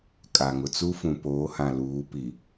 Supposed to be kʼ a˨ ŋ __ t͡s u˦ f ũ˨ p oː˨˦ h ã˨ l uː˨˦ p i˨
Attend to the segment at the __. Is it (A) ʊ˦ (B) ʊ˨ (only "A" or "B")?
B